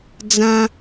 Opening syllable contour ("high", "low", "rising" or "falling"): high